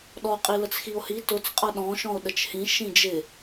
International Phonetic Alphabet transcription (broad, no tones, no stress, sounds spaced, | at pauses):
ɗ ɔ qʼ i l ə t͡s x i o̯ h i t ʊ t͡s qʼ ʌ ɗ ɔ̃ ʃ ɔ̃ o̯ ɗ ə t͡ʃ h ĩ ʃ ĩ d͡ʒ ɪ